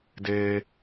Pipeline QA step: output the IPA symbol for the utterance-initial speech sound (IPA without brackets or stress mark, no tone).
d